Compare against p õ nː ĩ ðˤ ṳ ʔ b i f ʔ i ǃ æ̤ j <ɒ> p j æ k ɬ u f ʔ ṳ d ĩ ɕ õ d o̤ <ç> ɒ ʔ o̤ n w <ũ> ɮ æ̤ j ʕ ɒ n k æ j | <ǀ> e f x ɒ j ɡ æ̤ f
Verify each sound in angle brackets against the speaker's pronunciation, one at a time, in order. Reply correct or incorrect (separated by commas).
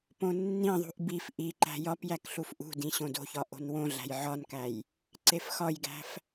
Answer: correct, correct, incorrect, correct